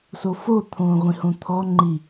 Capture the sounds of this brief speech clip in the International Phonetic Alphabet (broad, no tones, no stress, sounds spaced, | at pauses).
s o f o t̪ʰ õː ʁʷ ĩ h õ t̪ʰ ɔ ŋ͡ǃ i